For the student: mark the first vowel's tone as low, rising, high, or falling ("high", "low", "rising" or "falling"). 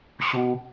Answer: high